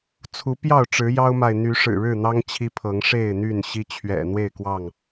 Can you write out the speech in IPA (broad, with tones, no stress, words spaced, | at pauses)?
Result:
t͡sʰu˨˦pjɑ˥˨ʊ̯ ʈ͡ʂɻ̩˨˦jɑ˦ʊ̯ma˨ɪ̯ n̪y˨˦ʂɻ̩˨˩ɻɻ̩˥˨n̪ɑ˦ŋ t͡ɕʰi˦pʰɤ˨˦ŋ ʂe˥˨ɪ̯ n̪y˥˨n ɕi˦t͡ɕʰɥɛ̰˨˩n̪we˥˨ɪ̯ kwɑ˥˨ŋ